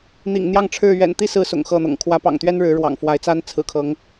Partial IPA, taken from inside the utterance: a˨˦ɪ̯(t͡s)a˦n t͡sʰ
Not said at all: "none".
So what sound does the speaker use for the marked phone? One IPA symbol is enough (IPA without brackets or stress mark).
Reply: t͡s